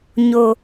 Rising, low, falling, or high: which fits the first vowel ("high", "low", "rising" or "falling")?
low